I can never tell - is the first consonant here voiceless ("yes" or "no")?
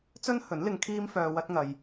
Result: yes